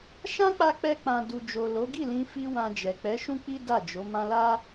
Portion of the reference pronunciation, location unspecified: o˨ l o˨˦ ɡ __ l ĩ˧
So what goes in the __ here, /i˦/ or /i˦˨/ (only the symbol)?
i˦˨